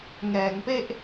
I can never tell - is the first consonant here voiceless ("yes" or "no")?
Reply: no